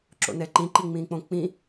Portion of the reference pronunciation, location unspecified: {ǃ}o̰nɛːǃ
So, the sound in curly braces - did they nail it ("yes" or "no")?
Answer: no